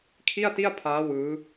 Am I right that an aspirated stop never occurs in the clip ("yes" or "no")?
no